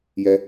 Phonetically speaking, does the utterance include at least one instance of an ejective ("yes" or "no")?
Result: no